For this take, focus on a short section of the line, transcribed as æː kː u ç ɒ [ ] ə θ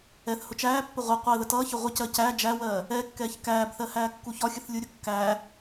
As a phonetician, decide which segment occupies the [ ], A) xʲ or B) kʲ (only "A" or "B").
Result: A